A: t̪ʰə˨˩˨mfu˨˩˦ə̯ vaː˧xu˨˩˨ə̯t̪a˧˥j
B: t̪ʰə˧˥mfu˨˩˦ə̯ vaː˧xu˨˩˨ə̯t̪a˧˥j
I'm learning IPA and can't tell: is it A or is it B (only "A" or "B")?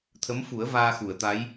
B